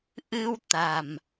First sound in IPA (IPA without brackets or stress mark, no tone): ʔ